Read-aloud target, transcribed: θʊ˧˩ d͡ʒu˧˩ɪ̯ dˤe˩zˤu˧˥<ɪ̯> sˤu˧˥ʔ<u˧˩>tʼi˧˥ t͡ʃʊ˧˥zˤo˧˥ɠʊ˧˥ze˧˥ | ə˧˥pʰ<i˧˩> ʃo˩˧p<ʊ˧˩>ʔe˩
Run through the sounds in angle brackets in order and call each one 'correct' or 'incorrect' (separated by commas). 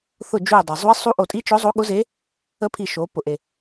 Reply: correct, incorrect, correct, incorrect